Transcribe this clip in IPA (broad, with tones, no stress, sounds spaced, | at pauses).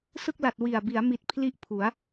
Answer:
s ɯ˥˩ k̚ l a˨˩ t̚ w i˨˩ a̯ b i˩˦ a̯ m i˨˩ t̚ pʰ l i˦˥ ʔ pʰ u˩˦ a̯